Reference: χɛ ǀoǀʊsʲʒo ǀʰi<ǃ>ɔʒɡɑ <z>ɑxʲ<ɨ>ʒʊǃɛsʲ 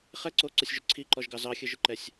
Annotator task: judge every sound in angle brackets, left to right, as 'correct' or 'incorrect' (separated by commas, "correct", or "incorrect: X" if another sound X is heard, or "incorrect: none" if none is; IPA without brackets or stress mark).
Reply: correct, correct, correct